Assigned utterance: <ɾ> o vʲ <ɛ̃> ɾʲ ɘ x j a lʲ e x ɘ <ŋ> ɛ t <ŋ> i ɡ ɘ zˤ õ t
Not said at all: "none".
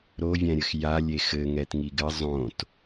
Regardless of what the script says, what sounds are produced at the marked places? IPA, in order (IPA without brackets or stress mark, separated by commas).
ɾ, ɛ̃, ŋ, ŋ